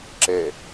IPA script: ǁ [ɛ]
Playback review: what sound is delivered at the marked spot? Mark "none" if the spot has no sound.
ɛ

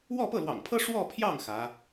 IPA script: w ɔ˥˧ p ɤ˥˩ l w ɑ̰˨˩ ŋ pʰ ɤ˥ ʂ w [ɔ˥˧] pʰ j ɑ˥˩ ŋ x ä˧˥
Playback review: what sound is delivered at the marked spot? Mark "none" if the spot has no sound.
ɔ˥˧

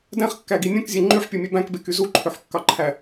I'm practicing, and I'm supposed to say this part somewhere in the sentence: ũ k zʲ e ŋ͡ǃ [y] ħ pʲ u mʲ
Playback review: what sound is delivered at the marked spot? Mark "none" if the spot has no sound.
y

